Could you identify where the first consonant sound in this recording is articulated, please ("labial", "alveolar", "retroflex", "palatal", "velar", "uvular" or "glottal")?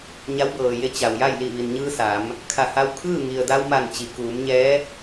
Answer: palatal